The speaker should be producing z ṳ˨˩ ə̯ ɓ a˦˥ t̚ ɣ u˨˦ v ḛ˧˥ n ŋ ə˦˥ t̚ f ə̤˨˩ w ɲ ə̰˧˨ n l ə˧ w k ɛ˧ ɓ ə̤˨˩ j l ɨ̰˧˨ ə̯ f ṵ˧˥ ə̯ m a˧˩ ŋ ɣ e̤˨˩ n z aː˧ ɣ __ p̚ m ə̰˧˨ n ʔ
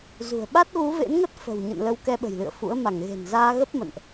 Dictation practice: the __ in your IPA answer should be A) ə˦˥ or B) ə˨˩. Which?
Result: A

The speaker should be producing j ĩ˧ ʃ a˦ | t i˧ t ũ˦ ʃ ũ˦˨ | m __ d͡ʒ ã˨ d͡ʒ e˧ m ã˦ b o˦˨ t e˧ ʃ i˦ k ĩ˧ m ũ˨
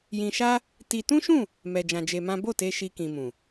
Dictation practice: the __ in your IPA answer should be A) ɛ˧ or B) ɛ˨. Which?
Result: B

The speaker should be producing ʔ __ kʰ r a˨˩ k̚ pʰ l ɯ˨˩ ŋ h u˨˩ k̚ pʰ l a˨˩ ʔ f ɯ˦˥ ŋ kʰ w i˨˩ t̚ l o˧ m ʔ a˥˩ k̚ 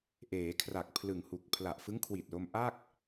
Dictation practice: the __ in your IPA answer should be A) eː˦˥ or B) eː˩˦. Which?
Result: B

